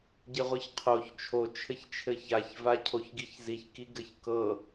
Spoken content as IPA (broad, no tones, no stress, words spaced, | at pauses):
ɟɘʁʷɤçqʰoç t͡ʃʰo t͡ʃʰɘçt͡ʃʰɘçaç vacʰoçɡiçziç kiɡɘçkɤ